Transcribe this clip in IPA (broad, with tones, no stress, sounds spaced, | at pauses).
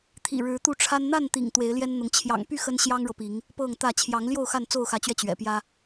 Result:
t̪ʰ ḭ˨˩ ɻ ɻ̩˨˦ t̪ u˥˨ ʈ͡ʂʰ a˦ n n̪ a˥˨ n t̪ ḭ˨˩ ŋ t̪ w e˨˦ ɪ̯ l j ɛ˦ n n̪ ʊ˨˦ ŋ t͡ɕʰ j ɑ̰˨˩ ŋ p y˥˨ x ə˦ n ɕ j ɑ˦ ŋ ɻ ɤ˨ p i˨˦ ŋ | p ɤ˥˨ ŋ t̪ ä˥˨ t͡ɕʰ j ɑ˨˦ ŋ l j o˥˨ ʊ̯ x a˥˨ n t͡s o˥˨ ʊ̯ x ä˨˦ t͡ɕ ɥ ɛ˧ t͡ɕ ɥ ɛ̰˨˩ p j ä˦